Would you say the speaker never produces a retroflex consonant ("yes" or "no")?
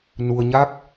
yes